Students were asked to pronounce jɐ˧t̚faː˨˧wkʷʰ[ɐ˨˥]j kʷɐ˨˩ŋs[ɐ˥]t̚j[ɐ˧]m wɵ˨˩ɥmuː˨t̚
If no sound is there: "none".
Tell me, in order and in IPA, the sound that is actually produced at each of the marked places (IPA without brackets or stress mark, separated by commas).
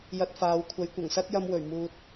ɐ˨˥, ɐ˥, ɐ˧